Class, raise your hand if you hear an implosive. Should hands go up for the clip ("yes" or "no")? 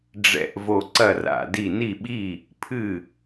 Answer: yes